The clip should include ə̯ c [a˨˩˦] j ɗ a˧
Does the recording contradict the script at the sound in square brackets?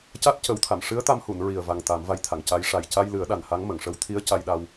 yes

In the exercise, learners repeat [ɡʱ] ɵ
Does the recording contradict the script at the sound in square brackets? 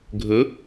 no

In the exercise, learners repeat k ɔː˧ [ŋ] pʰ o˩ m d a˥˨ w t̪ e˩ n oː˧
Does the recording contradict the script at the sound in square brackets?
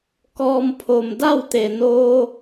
yes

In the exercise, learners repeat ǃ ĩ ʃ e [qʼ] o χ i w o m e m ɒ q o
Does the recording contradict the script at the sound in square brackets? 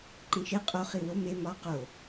no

